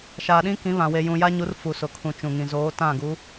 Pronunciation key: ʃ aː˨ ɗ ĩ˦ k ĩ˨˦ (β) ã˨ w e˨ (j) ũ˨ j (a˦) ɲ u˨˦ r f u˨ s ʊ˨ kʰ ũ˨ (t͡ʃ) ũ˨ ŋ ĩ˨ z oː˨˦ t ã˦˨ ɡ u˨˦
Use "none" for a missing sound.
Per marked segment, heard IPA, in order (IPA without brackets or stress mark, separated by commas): β, j, a˦, t͡ʃ